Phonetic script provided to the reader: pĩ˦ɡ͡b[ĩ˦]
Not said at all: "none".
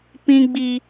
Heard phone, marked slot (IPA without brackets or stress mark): i˦